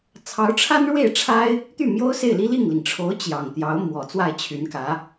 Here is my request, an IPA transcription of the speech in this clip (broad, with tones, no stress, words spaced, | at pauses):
t͡sʰɑ˧˥ʊ̯ʈ͡ʂʰa˥nɻwe˥˩ɪ̯ʈ͡ʂʰa˥ɪ̯ | t̪y˥˩mjo˥ʊ̯se˥˩ɪ̯li˥ li˥˩ŋli˩ŋʈ͡ʂʰo˧˥ʊ̯ t͡ɕjɑ˨˩ŋt̪jɑ˧˥ʊ̯ mwɔ˨˩t͡swa˥˩ɪ̯t͡ɕʰy˧˥nkä˧˥